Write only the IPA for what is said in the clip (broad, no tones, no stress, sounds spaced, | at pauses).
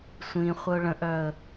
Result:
sʷ ĩ χʷ ə ʊ̯ ɭ ə̃ ʔ œ ə̯